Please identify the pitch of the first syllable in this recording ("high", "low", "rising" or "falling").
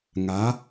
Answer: rising